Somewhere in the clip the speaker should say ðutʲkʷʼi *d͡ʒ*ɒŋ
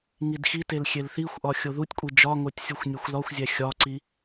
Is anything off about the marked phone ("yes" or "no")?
no